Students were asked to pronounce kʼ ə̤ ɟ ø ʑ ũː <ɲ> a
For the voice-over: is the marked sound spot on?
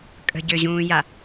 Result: no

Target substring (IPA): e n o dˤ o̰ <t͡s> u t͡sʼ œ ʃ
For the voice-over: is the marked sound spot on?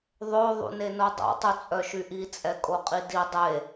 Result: no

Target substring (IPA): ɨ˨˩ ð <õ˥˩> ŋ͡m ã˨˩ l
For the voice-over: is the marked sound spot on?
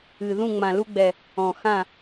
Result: no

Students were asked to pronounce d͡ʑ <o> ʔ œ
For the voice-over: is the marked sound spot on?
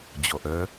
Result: no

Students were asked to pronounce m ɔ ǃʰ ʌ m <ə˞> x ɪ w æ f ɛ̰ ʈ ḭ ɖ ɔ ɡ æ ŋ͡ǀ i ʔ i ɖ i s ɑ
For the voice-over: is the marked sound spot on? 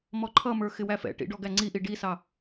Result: yes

